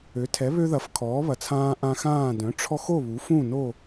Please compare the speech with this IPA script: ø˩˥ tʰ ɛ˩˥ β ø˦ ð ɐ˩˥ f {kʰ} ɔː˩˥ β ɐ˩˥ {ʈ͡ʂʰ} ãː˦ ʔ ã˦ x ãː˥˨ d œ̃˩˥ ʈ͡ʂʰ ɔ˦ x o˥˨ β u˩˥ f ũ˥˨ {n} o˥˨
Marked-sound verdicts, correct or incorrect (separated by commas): correct, incorrect, correct